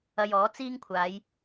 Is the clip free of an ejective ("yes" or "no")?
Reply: yes